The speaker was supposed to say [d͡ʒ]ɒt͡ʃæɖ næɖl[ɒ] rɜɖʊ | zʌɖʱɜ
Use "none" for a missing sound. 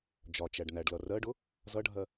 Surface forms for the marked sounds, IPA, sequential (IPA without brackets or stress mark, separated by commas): d͡ʒ, ʌ